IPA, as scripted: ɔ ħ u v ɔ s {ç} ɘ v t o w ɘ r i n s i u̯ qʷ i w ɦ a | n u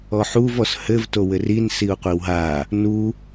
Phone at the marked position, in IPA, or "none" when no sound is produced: h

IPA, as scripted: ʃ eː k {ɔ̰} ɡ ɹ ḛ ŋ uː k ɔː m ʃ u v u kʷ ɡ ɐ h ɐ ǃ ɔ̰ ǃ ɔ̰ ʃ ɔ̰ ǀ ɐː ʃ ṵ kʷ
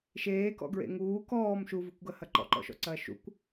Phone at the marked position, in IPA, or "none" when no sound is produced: ɔ̰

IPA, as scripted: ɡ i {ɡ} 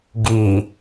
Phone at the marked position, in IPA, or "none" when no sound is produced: none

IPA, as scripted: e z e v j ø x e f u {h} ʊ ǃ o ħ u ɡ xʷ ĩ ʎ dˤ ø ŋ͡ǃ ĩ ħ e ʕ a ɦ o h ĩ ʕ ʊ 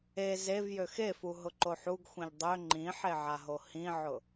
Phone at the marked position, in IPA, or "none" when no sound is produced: ɦ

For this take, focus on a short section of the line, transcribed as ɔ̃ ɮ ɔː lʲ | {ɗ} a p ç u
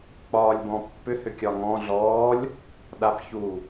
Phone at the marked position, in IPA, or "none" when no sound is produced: ɗ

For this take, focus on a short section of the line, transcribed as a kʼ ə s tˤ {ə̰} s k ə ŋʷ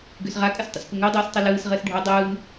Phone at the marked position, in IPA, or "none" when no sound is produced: ə̰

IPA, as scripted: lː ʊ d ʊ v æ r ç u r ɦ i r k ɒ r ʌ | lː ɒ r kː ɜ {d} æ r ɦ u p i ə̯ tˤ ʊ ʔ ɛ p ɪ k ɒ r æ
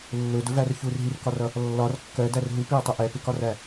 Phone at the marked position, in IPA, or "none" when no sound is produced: d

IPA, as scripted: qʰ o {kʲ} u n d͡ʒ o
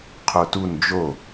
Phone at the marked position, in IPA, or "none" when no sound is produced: t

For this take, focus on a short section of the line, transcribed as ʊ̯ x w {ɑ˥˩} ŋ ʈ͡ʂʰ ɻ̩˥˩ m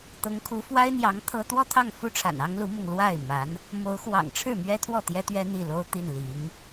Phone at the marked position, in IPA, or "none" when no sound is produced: ɑ̰˨˩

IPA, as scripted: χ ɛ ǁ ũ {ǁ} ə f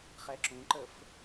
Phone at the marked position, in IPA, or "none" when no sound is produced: ǃ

